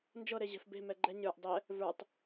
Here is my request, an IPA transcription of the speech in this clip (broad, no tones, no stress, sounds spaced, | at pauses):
n d͡ʒ ɤ ɾ e ʑ ɛ̤ f b e̤ m ɛ ɡ͡ǃ ɛ ɲ ə˞ ʔ dˤ ɛ | v ə˞ tˤ